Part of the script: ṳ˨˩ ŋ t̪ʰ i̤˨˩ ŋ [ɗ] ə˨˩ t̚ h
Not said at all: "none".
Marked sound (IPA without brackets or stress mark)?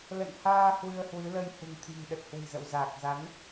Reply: ɗ